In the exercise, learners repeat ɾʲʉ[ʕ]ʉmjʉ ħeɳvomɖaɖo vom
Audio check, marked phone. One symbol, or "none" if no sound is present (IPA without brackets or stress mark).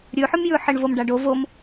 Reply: ħ